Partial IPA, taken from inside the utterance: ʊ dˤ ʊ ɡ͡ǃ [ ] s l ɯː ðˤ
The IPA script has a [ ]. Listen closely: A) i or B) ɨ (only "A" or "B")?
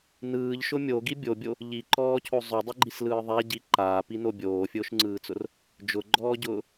A